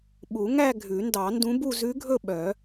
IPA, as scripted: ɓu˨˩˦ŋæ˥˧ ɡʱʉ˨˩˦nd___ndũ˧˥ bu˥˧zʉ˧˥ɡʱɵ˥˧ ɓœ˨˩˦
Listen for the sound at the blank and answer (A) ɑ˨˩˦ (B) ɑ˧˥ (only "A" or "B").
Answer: A